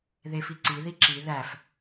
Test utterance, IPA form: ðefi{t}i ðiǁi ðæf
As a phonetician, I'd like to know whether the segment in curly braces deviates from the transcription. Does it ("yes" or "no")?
yes